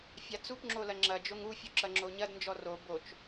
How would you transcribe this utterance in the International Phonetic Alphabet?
fʲ a t͡s u p ŋ͡ǁ o l ɐ ŋ͡ǁ ɐ d͡ʒ o ŋ u fʲ u ǁ ɐ ŋ͡ǁ o ɲ ɐ d n d͡ʒ ɔ r o b o t͡ʃ

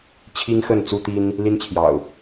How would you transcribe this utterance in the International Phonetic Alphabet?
t͡ɕʰ i˦ ŋ x ə˥˨ n t͡s u˦ t̪ i˦ n | l i˦ n t͡ɕʰ j ɑ̰˨˩ ʊ̯

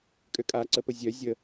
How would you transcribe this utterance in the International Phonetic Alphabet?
kʼ ø kʼ a ǀ ə p ə zʲ œ zʲ ə

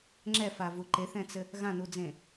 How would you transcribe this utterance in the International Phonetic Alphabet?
ŋ͡ǁ ɛ f a v u ǃ e θ ɛ̃ t͡s ɘ | ɣ ã n u d͡z ẽ

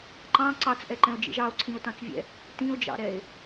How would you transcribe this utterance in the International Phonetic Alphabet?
ǃ ɑ̃ ǀ ɑ t͡s ʔ ɛ ǃ ɛ̃ o̯ d͡ʒ ḭ ʒ ɑ o̯ ǀʰ ĩ o̯ t ɑ̃ t͡s vʲ ɛ̰ | t ĩ o̯ d͡ʒ ɑ̰ ɾ ɛ e̯

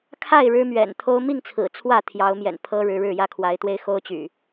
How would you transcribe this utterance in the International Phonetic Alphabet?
kʰ a˥˨ ɪ̯ ɻ ɻ̩˦ m ɥ ɛ̰˨˩ n t̪ʰ o˦ ʊ̯ m i˥˨ ŋ t͡sʰ ɹ̩˨˩ t͡sʰ w ä˥˨ t̪ʰ j ɑ˨˦ ʊ̯ m j ɛ̰˨˩ n pʰ ɤ˦ ɻ ɻ̩˨˦ ɻ ɻ̩˥˨ j ä˥˨ kʰ w a˨˦ ɪ̯ t̪ w e˦ ɪ̯ x o˦ ʊ̯ t͡ɕ y̰˨˩

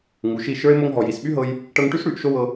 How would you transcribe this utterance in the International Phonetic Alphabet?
ŋ u˨ ʃ i˦˨ ʃ ə˞˦ e̯ m o˧ ŋ ɦ ɔ˨ j i˨ s ɓ y˦ ɦ ɤ˦ j | ʈ ɤ˧ ŋ ʈ y˦ s ɽ y˨˦ ʔ ʃ o˦ w ɤ˧

